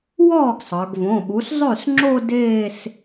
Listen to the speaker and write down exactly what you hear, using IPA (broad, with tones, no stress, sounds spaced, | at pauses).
w ɔː˥˩ ɡ sˤ ə˞˩˧ ɡ v õ˩˧˩ ɓ u˩˥ s zˤ ʉ˥˩ s ŋ͡ǁ o˥˧ d eː˥˧ s